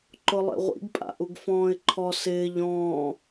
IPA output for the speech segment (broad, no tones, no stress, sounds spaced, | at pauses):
ǃ ʊ lˠ ḛ ʁʷ ḭ ɡ pʼ a̰ ʔ u ɡ f ɔ̃ː ɪ̯ ǃʰ ɔ s ɪː ʎ ɔ̃ː